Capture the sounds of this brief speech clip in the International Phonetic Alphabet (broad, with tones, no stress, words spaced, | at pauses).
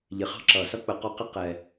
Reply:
ʎɪ˨χɑ̤˧ ǁʌː˨sʌ˦k͡pə˨˦ qɔ˧qɪ˦ qɛ˧